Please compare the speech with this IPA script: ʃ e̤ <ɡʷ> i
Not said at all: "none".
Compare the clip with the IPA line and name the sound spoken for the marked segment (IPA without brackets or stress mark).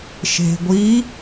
ɡʷ